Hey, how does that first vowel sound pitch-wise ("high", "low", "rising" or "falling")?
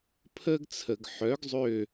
high